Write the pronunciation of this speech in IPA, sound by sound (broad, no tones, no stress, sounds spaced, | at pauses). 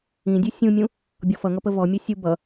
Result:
ĩ dʲ u sʲ ũ mʲ ũ | bʲ ɔ f ʌ ŋ ʌ p ə v ɔ mʲ u sʲ u b ʌ